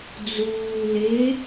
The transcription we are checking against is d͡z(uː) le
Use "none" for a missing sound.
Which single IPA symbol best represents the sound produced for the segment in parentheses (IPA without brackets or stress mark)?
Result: uː